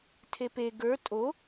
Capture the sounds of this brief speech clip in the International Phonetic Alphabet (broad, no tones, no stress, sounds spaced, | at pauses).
tʰ e p e ɡ ə˞ tʼ o